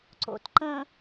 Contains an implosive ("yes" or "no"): no